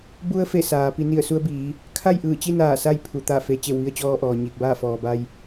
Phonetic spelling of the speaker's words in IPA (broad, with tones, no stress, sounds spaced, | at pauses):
b u˧ ə̯ f e˧˩ s aː˩˧ p i˩˧ n i˧˩ ə̯ s u˧ ə̯ b iː˩˧ | kʰ a˥˨ j ʔ ɯː˧˩ t͡ɕ i˥˨ n aː˧˩ s a˥˨ j pʰ u˩ t̪ a˧˩ f e˩˧ t͡ɕ e˧˩ w ʋ i˧ ə̯ t͡ɕ ɔː˧ ʔ ɔː˩ ɲ iː˧˩ k̚ b aː˥˨ f ɔː˩ b a˧ j